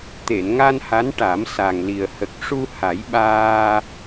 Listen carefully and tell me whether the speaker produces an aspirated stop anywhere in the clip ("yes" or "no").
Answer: no